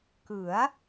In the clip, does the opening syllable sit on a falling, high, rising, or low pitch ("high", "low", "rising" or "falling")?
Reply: rising